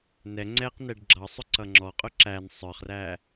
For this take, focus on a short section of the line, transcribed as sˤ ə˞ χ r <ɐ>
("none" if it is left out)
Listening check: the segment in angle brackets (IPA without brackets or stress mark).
æ